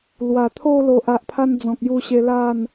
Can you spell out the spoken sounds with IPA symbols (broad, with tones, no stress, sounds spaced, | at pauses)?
l w a˨˩ t̪ʰ o˥˧ l o˨ ʔ a˨ ʔ pʰ a˧ n d͡z ɔ̃˨ k̚ j u˧ ɕ e˧ l a˥˧ n